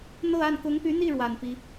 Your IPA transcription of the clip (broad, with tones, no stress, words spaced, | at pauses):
n̪ɤ˥˧a˥˩n kʊ˧˥ŋpy˧˥n̪i˥˩ɻwa˨˩n pi˥